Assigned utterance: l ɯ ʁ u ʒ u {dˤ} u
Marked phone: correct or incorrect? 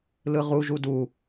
incorrect